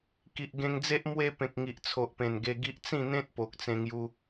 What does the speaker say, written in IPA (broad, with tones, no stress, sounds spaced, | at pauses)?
k i˨ ʔ ɡ ẽ˧ ŋ d͡z e˦ ʔ m w e˦ p ẽ˨ k̚ ŋ i˨ ʔ t͡sʰ o˨ ʔ p ẽ˨˩ n ɡ e˧ ɡ i˦ ʔ t͡s ĩ˥˧ n̪ ẽ˦ t̚ p o˨ k̚ t͡s ẽ˧ ŋ j u˧